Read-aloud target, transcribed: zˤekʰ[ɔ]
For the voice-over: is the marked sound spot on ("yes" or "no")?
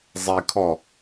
yes